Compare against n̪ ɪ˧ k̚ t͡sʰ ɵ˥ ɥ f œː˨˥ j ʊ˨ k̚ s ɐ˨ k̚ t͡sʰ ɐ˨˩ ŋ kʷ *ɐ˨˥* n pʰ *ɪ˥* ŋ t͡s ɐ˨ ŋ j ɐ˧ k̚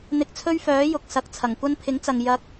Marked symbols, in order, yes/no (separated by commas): no, no